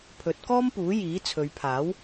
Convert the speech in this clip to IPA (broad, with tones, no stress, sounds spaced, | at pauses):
pʰ ɵ˨˥ t̚ k ɔː˥ m p uː˨˥ j iː˨˥ t͡sʰ ɵ˨˧ ɥ pʰ aː˨˥ w